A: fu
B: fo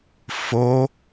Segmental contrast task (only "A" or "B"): B